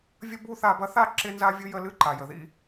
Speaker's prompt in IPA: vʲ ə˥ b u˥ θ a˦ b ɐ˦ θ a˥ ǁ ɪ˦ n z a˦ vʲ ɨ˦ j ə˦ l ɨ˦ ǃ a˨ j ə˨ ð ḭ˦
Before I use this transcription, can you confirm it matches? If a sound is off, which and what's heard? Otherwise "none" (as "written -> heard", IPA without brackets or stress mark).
none